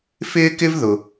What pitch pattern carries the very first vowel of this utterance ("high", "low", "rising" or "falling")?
high